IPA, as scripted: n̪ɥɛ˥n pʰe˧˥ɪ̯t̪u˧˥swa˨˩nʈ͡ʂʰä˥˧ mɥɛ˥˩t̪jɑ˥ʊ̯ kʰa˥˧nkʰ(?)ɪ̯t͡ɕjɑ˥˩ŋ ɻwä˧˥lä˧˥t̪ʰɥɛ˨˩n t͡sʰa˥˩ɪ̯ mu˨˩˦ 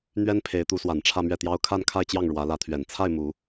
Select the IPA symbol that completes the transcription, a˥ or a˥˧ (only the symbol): a˥˧